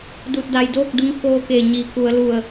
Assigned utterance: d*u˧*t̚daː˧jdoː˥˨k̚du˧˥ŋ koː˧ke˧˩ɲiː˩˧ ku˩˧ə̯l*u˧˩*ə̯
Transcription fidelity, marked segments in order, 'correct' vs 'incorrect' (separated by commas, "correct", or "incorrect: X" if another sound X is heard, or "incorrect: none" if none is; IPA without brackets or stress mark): correct, correct